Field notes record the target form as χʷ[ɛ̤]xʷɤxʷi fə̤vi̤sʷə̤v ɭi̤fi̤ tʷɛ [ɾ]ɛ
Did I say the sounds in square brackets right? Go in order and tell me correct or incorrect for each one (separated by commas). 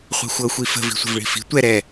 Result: correct, correct